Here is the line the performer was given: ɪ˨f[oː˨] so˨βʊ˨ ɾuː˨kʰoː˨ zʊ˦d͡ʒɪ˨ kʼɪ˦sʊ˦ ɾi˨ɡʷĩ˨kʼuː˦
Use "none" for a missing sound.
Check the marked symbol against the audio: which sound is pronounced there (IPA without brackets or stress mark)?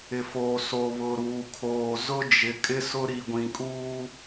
oː˨